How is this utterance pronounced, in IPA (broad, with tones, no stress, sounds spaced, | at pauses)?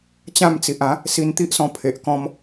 t͡ɕ ã˥˧ m t͡s i˨ ʔ ã˨˦ | s i˧ n t̪ i˦ ʔ s ɔ̃˧ pʰ e˨ ʔ k ɔ̃˧ m